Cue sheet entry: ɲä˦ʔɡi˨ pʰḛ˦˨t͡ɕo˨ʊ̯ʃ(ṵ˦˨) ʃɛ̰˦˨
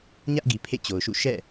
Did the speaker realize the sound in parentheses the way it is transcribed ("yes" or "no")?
yes